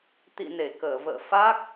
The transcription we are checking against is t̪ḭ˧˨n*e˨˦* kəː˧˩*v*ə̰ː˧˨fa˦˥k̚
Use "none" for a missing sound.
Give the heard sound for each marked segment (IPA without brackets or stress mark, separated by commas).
e˧˩, v